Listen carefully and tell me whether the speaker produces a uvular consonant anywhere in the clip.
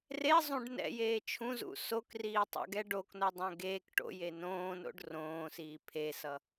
no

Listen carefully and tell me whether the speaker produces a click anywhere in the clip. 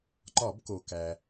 yes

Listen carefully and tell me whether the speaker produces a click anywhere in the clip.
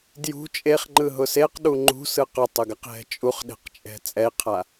yes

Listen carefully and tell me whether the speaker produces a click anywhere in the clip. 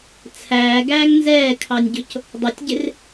no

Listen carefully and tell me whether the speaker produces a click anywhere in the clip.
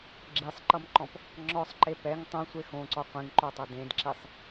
yes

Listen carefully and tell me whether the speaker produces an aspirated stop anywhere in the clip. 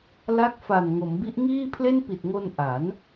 yes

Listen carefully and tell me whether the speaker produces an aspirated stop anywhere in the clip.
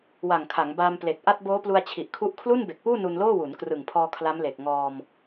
yes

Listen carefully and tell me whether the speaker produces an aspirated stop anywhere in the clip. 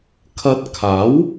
yes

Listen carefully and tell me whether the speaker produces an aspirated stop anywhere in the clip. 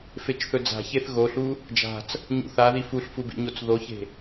no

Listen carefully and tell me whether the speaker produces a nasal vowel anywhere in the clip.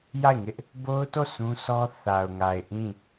yes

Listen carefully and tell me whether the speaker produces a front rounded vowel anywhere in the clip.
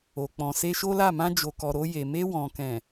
no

